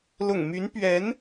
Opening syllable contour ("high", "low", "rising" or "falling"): low